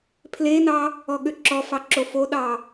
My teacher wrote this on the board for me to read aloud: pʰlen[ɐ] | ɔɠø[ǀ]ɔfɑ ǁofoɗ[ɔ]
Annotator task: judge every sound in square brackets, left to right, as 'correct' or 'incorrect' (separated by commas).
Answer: incorrect, incorrect, incorrect